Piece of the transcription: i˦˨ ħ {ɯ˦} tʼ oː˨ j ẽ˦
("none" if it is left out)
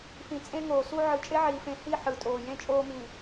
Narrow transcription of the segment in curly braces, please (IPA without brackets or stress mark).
ɯ˨